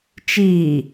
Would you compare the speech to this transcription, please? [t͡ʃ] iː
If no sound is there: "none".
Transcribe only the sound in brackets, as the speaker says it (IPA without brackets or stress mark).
t͡ʃ